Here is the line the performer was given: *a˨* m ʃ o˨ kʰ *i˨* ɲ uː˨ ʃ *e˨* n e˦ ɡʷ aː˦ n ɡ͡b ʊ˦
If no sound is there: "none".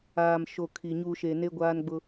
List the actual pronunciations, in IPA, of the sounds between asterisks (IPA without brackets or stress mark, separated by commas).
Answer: aː˨, i˨, e˨